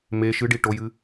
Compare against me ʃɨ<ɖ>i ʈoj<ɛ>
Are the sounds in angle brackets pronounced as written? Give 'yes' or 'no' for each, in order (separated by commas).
yes, no